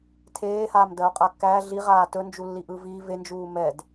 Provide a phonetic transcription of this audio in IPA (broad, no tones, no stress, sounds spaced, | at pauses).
tʰ eː h aː m d ɜ o̯ qʼ a kː æː ɮ i ʁ aː t ɵ n d͡ʒ u lː i ʔ ɯ v i v e n d͡ʒ uː m ɛ d